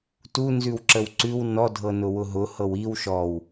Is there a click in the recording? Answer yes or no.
yes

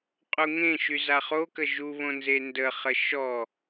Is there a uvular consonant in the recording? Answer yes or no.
yes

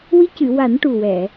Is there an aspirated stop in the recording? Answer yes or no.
no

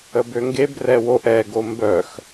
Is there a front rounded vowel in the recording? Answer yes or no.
yes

